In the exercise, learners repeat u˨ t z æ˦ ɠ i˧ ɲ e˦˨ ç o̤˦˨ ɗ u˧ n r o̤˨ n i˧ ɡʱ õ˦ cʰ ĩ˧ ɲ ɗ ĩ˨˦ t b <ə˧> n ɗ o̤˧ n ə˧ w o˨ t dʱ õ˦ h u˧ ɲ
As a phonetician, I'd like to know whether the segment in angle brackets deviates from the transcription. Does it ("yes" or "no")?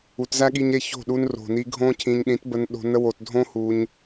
no